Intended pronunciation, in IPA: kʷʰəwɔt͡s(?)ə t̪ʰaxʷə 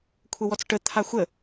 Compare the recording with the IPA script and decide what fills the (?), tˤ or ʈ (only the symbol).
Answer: ʈ